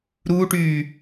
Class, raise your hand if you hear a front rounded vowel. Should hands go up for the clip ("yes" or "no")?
yes